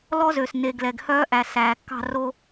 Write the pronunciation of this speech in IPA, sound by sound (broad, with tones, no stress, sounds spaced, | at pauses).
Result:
l ɔ˦ z ø˨ s n e˨ ɡ l ɛ˨ ɡ h œː˦ ʔ æ˨ s æː˨ kː ɑ̤˦˨ r o˦